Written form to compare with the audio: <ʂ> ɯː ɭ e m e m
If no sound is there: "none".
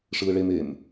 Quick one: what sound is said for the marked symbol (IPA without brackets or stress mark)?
ʂ